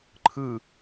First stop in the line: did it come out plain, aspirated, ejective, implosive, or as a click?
click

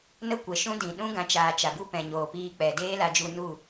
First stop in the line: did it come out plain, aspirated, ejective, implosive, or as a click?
plain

